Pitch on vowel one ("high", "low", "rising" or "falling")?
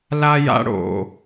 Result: high